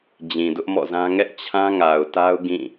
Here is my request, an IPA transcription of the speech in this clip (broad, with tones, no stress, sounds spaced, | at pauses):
d͡ʑ ĩ˨ d ʊ˦ ʔ m ɔ̰˦˨ z ã˦ ŋ ɛ˦ ʔ t͡ɕʰ ã˦ ŋ a˨ ʊ̯ t a˦ ʊ̯ ɡ ĩ˦˨